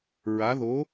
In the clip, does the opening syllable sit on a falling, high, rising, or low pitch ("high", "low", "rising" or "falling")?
rising